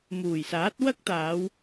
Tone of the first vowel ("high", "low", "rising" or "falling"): low